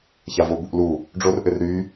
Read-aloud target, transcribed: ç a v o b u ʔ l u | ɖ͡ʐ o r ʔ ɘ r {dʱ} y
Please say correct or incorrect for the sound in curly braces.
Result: incorrect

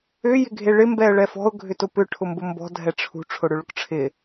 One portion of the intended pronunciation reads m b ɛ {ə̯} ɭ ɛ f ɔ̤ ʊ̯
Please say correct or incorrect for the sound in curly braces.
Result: correct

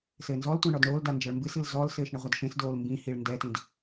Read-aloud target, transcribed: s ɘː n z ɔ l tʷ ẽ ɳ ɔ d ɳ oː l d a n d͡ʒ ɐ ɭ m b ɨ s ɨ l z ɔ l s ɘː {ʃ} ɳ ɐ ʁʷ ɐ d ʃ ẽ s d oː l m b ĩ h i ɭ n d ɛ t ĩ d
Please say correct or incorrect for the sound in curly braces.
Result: correct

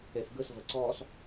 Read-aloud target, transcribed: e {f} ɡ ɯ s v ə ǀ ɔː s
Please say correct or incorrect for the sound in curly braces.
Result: correct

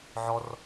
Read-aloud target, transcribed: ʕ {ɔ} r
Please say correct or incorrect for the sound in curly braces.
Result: correct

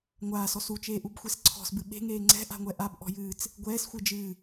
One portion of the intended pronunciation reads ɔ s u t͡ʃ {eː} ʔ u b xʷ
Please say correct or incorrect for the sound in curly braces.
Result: correct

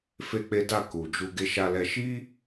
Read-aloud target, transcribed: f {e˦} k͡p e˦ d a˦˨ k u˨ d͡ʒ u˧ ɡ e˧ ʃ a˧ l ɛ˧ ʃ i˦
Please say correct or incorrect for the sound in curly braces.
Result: correct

